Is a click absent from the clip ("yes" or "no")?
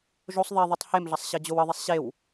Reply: yes